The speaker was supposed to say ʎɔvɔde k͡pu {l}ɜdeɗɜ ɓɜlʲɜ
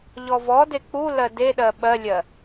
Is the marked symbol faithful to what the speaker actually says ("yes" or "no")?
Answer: yes